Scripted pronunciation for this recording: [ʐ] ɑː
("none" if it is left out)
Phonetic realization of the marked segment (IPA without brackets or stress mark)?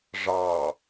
ʐ